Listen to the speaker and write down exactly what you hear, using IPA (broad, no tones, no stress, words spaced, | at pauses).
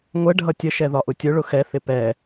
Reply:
ŋʷɛ ɖʱʌtʲəʃɛ ðɒʔʊtʲʊɭʊ xɛθɪ pɛ